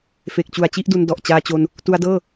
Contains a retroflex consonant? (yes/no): no